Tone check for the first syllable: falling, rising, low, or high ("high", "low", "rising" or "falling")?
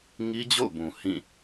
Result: high